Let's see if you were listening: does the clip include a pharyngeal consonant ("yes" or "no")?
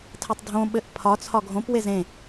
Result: no